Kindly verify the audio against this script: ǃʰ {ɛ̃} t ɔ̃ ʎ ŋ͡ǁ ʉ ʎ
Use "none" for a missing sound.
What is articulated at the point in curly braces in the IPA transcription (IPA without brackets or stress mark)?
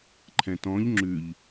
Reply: ɛ̃